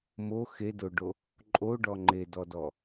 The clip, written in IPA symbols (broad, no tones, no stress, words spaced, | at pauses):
mo xedoɖo | ǃʼoɖɔ ŋ͡ǃedɔdɔ